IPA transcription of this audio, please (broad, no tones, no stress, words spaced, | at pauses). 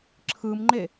ǁʰɯmŋ͡ǃe